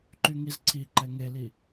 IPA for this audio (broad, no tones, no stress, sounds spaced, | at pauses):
ǃ y ŋ i z ǀʰ i ǃ ɛ ŋ e l i